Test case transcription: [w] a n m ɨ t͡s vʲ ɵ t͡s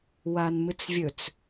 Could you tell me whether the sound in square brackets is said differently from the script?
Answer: no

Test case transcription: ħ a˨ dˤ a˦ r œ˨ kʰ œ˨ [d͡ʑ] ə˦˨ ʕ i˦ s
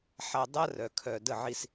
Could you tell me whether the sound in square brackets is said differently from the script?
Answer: yes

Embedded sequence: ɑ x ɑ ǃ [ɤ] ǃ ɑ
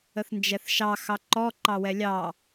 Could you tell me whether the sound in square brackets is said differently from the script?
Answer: yes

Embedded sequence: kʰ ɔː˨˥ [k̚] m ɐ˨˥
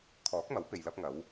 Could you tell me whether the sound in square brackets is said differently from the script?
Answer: no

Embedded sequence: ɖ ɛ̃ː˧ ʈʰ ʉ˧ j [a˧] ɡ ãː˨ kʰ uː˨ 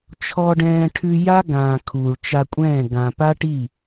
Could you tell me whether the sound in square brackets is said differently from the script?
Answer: yes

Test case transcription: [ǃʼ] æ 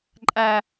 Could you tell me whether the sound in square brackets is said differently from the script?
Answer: no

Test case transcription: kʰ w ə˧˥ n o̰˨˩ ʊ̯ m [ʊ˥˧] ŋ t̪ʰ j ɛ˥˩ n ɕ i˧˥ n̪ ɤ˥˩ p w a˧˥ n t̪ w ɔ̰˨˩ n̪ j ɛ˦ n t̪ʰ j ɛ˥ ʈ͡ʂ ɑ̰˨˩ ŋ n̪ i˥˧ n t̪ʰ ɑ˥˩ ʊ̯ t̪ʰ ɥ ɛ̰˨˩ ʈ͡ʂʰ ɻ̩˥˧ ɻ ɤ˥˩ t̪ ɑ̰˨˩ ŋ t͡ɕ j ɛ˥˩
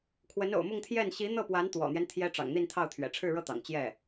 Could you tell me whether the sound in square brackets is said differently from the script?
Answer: no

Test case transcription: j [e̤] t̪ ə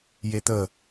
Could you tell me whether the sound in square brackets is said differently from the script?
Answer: yes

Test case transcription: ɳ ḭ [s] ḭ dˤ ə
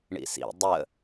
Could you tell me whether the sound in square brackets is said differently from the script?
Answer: no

